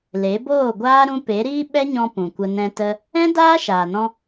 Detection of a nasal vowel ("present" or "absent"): present